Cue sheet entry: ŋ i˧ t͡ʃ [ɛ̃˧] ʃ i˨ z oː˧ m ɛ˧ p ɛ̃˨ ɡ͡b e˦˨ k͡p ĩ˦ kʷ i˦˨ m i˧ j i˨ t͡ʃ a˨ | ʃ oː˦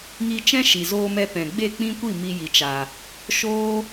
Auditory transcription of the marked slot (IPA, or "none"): ɛ̃˦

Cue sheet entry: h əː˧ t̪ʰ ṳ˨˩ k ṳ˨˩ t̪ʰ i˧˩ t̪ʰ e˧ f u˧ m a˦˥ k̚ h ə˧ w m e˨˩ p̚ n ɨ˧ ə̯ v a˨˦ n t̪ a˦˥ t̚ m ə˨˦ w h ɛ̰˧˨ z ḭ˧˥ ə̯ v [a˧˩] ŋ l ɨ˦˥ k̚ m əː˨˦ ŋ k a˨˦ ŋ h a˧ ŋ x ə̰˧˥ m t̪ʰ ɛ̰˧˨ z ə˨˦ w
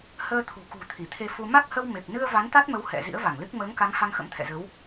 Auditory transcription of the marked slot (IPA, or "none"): a˧˩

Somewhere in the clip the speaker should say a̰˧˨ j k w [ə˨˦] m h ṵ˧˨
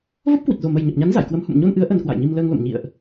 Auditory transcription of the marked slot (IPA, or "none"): ə˨˦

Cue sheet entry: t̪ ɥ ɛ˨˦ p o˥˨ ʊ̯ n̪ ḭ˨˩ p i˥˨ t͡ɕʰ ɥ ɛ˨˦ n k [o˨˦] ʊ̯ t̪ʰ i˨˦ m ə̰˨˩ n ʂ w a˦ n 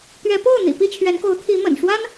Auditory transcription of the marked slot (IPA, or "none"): o˨˦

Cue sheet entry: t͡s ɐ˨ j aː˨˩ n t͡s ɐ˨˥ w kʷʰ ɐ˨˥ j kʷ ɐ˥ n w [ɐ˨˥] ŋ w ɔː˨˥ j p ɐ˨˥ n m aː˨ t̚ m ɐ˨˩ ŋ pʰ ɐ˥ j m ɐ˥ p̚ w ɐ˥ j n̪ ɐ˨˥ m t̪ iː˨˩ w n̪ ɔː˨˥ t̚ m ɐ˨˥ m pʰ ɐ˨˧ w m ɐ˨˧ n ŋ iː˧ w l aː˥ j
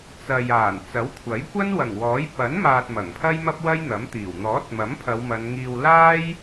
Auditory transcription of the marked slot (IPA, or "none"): ɐ˨˩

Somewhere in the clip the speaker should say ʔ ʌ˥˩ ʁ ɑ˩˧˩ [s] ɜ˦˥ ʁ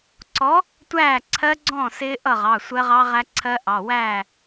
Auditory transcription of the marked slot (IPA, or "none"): sʷ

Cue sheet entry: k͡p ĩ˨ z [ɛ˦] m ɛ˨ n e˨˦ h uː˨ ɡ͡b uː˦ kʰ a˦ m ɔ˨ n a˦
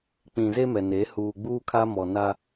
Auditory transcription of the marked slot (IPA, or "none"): e˦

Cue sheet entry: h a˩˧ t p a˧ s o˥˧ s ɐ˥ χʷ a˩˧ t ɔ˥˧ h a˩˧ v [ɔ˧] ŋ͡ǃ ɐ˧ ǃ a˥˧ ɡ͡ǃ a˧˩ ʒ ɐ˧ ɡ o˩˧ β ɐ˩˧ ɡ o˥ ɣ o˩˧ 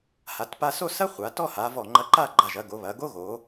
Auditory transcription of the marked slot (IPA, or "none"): ɔ˧˩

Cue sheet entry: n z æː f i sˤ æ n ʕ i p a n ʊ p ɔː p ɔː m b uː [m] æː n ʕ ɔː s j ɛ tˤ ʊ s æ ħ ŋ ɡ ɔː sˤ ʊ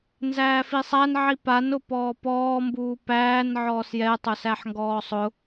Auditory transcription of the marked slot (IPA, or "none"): p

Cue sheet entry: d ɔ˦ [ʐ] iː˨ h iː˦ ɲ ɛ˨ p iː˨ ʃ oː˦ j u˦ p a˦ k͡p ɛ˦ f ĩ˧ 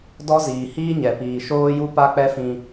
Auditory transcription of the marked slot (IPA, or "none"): z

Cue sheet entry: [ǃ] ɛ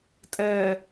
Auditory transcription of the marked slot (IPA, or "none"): tʼ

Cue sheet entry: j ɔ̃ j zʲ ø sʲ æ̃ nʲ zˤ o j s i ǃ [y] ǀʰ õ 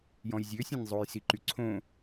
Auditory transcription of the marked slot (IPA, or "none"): y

